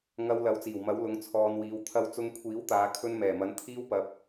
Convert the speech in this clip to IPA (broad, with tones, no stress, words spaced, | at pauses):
ŋɐ˨w lɐ˨˥wt͡siː˨˩wmɐ˨˥wlʊ˨˥ŋ t͡sʰɔː˨nwiː˨wt̪ʰɐ˧w t͡sʊ˧ŋkʷʰiː˨˥wt̪aː˨˧ kʰɵ˧nmɛː˨˩mɐ˨˧n t̪ʰiː˥wpɐ˧p̚